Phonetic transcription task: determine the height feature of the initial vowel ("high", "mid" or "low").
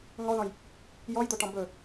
mid